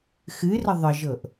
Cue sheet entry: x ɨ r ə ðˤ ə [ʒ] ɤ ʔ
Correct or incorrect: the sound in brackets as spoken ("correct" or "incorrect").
correct